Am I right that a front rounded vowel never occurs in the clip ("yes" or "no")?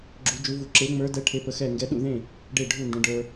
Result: yes